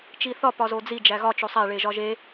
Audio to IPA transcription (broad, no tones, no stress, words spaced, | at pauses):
t͡ʃiθɒ pɒzod͡zi d͡ʒæɣɒ t͡ʃosˤæ ɭeʒɒʒe